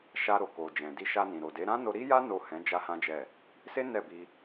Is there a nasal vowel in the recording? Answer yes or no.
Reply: yes